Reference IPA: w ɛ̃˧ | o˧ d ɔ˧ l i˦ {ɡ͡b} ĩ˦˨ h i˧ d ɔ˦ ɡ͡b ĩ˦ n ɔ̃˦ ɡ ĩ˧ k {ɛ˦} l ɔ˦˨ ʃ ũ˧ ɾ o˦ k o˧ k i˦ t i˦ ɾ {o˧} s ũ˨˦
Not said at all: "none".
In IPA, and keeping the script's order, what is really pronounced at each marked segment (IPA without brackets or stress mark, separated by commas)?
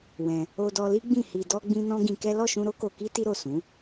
ɡ͡b, ɛ˦, o˦˨